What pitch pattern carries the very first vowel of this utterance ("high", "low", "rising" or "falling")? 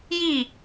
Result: falling